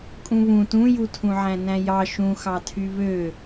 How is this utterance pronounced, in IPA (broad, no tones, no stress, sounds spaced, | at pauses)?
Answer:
kʼ ũ β ũ t ũ j u tʰ ũ ʕ æ̃ n æ̃ j ɑ ʃ ũ x ɑ tʰ y β ø